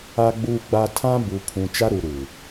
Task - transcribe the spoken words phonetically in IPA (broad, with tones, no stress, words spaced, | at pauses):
a˨ɡ͡buː˨ɡ͡ba˨ tʰã˦bu˨pʰũ˨ t͡ʃa˦ɾu˨ɾuː˨